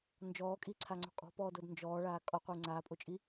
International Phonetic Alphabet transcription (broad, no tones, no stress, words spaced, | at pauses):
nd͡ʒɔːkʼiǀʰaŋ͡ǀɔ̤ kʼɔ̤pɔːdod nd͡ʒɔːɭaː kʼɔqʷɪː ŋ͡ǀaːpʼot͡ʃʼi